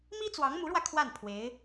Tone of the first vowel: high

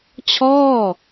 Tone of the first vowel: falling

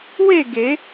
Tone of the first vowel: falling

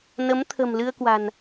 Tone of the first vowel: rising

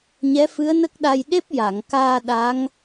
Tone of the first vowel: rising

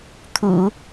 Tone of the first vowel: low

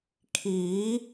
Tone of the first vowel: rising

